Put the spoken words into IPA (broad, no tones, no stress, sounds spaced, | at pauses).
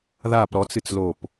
ð a p ɾ ɔ t͡s ɨ t͡s l o p